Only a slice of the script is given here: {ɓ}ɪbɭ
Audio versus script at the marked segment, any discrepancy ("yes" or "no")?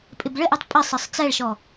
yes